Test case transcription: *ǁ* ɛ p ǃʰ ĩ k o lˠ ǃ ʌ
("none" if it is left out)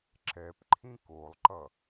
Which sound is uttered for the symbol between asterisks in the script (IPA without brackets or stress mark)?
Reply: ǁ